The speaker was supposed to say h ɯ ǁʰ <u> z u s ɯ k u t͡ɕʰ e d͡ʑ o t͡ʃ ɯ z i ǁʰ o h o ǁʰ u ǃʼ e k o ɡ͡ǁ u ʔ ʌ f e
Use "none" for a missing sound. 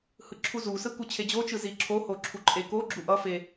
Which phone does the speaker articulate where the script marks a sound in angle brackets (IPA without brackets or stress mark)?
u